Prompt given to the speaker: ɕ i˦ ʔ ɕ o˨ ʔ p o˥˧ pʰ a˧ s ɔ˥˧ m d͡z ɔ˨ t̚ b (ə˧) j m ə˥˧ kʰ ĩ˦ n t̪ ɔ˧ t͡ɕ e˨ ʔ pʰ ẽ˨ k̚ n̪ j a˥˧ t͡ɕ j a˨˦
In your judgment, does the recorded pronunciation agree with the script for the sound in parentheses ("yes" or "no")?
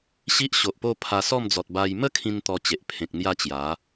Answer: no